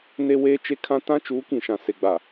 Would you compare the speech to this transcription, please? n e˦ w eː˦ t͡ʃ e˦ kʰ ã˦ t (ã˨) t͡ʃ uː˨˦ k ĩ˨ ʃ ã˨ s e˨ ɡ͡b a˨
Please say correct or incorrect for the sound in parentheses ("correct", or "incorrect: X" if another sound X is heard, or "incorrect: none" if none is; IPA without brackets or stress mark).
incorrect: ã˦